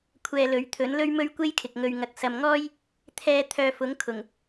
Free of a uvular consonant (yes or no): yes